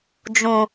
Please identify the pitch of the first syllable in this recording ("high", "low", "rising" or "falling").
low